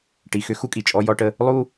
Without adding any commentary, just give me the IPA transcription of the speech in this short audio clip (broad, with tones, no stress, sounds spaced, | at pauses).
ʈ i˨ x ʏ˦ x u˦ kʼ i˨ t͡ʃʼ ɔ˦ j ɔ˦ ʈ ə˦ | lˠ u˦